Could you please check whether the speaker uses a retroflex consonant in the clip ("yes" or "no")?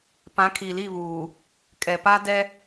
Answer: no